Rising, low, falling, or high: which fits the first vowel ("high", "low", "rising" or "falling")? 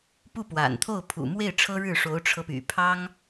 falling